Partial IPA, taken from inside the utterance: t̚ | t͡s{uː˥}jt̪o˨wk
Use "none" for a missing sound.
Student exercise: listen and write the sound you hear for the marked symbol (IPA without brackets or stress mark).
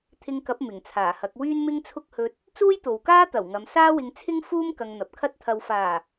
uː˥